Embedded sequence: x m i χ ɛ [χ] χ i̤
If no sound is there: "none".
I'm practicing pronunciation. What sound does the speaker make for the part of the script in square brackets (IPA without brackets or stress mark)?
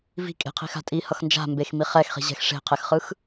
x